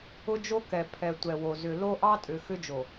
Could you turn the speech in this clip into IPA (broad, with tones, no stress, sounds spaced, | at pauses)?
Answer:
ʊ˦ d͡ʒ o˦ k ɛ˨ pʰ ɛ˨ tʷ ɛ˨ w o˨ z ʏ˨ l o˦ ʔ ɑ˦ tʼ ʏ˨ x ʏ˦ d͡ʒ o˨